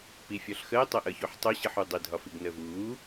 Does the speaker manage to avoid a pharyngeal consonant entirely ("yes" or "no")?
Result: no